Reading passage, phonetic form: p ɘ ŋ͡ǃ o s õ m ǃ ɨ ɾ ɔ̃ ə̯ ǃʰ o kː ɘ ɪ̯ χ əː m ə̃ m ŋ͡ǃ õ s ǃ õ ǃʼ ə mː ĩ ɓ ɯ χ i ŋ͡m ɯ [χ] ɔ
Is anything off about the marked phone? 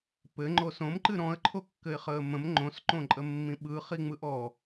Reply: yes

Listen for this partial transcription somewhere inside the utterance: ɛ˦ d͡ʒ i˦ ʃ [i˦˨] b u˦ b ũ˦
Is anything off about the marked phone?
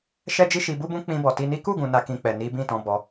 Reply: yes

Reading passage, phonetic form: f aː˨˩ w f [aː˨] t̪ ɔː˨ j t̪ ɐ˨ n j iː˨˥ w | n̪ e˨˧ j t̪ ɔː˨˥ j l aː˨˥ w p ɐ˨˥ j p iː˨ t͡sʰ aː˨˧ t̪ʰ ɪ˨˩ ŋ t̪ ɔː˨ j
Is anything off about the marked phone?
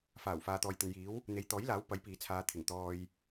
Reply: no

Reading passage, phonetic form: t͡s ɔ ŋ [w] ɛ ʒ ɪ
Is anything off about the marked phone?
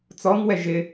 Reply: no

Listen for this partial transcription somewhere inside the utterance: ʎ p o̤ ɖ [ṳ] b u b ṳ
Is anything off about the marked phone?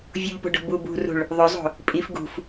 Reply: yes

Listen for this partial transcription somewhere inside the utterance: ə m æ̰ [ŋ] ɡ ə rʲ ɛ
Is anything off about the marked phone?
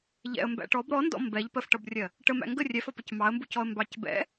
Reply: no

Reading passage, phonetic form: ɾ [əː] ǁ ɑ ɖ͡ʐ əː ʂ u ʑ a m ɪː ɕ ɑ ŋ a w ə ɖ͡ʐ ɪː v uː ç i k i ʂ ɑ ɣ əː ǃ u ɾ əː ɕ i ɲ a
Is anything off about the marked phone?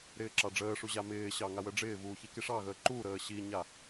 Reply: yes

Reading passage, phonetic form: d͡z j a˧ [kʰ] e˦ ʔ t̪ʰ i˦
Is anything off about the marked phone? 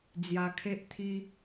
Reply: no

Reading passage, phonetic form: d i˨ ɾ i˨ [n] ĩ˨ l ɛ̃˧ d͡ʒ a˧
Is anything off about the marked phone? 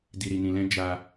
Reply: no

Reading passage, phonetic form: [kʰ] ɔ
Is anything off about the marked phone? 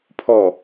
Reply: yes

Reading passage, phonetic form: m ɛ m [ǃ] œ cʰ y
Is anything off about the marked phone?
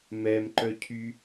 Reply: no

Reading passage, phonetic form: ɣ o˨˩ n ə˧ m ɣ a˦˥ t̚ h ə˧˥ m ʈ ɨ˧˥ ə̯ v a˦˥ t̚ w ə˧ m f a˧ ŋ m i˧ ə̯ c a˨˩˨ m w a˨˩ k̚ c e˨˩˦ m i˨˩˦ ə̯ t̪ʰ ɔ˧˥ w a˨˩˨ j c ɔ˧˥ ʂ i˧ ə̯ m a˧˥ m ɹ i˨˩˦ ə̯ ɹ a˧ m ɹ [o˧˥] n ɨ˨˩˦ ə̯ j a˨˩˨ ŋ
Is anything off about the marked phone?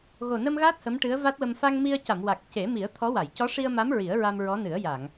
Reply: yes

